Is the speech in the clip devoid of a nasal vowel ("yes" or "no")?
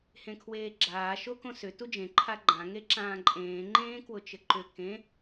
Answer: no